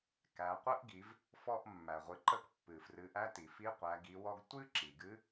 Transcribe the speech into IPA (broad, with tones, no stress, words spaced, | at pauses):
kæ˩˧ qʷə˧˥ʔɡi˩˧v | fɔ˧ʔ mːæ˩ʁʷɨ˩˧ ǃə˧˥kpːɨ˩frɨ˩˧ʔæ˧˥ ti˩fi˧˥ qʷæ˩˧ɡi˩˧wɔ˧ɡ tʷɨ˥ ǁi˩ɡɨ˧˥